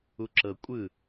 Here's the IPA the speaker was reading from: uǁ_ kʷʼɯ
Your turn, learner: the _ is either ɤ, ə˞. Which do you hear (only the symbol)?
ɤ